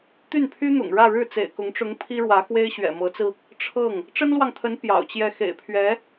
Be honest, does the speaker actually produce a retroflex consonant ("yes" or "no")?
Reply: yes